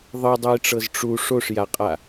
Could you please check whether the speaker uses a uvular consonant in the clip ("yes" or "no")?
yes